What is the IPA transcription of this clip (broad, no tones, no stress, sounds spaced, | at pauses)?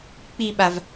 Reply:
k͡p i ɓ a v